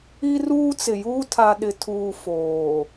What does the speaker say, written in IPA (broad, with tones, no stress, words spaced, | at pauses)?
i˦ruː˦t͡sɪ˨juː˦ tʰa˨ɗɪ˨tʰuː˨ foː˨